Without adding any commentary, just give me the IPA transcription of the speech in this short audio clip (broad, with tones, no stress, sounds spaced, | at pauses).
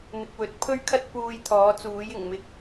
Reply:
n̪ ɪ˨ k̚ w ɵ˨ t̚ pʰ ɵ˥ ɥ kʰ ɐ˥ t̚ p uː˧ j t̪ʰ ɔː˨˥ t͡s uː˨˥ j ɪ˨˩ ŋ m ɪ˨ k̚